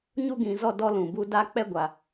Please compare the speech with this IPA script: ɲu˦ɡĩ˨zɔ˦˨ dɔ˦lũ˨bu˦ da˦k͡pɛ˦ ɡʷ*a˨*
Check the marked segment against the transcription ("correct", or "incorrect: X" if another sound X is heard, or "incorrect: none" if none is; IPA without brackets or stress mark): correct